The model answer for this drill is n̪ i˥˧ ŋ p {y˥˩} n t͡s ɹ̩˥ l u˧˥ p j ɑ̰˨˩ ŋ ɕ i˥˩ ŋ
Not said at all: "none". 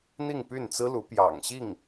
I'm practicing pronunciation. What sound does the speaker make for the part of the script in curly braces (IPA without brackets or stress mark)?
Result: y˥˩